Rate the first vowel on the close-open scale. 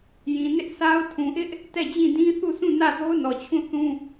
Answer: close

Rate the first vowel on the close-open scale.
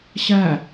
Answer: open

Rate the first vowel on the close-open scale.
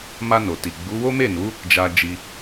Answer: open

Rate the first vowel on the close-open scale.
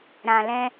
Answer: open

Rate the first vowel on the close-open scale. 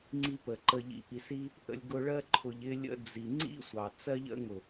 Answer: close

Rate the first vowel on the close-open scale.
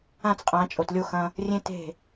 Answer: open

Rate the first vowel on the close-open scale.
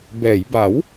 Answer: mid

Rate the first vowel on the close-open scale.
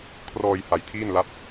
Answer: mid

